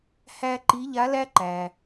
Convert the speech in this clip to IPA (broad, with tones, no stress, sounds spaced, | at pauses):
h æ˥ ǃ i˧˥ ʎ a˧˥ l æ˥ ǃ æ˩